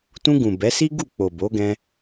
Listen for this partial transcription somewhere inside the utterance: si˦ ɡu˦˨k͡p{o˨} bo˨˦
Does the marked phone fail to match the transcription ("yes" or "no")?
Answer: no